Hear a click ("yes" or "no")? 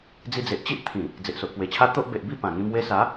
no